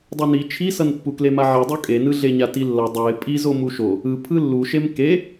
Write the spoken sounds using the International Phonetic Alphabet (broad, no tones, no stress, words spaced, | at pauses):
dˤuni t͡ʃʰisʌnpːukle maʕidˤu kʼenɯɮeɲa tilːʌ dˤɛɪ̯ pʼizo muʃo | ɯ pʰɯlːuʃem ke